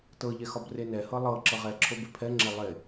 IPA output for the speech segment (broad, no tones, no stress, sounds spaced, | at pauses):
t ɤ ʎ ɛ x ɒ b r e n ɛ h ɤ lˠ ɤ ǁ ɤ ʁ ɛ ǁʰ o b e pʰ ɛ ŋ͡ǁ e lˠ e